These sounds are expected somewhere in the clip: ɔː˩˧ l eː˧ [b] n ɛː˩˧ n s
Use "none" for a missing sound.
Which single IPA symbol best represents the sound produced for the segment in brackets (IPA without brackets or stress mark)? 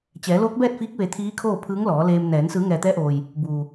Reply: m